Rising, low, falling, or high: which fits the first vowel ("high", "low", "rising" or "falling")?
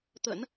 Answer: low